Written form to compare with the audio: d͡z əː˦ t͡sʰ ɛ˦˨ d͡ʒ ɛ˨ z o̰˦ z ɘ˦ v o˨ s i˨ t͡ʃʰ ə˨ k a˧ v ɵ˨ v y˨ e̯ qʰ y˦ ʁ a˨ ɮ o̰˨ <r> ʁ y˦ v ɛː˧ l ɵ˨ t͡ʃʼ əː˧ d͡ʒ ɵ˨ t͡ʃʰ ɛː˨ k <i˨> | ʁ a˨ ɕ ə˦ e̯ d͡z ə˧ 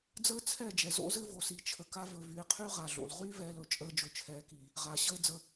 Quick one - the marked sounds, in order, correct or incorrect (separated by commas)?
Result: incorrect, correct